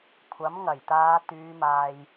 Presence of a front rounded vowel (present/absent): present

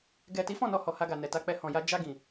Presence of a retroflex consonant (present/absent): absent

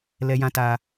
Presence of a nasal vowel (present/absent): present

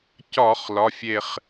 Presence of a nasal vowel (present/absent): absent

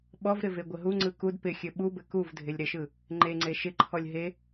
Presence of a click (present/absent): present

